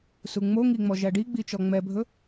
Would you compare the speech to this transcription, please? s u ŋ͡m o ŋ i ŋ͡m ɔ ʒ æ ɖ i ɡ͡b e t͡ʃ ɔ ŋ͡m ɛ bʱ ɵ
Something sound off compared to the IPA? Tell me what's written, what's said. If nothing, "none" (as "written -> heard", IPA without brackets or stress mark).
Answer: e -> i